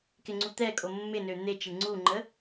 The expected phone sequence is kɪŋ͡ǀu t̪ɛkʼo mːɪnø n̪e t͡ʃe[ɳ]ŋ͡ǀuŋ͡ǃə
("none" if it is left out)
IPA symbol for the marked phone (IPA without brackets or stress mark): ɳ